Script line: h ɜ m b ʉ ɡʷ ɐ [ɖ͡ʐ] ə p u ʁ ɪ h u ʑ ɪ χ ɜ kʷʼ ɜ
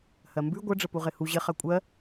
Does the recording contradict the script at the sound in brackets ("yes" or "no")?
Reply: no